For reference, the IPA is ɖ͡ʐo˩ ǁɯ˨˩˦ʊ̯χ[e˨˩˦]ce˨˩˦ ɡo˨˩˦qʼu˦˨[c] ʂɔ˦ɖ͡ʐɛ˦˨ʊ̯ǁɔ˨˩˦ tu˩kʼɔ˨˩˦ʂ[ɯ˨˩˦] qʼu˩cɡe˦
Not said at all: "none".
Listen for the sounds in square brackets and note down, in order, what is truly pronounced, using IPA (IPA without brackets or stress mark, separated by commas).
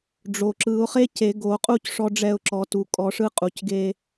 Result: e˦, c, ɯ˦